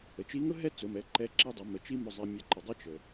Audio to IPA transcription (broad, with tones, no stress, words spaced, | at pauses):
ə˩t͡ʃi˧˥ŋʊ˥ ɦɛ˥t͡sʊ˩˧mɛ˩˧ ǃɛ˧˥ ǁi˧dˤə˩˧ mə˩˧ t͡ʃi˥mʊ˧zˤɛ˧ mʲɛ˧ ǃə˩dˤʊ˥t͡ʃə˩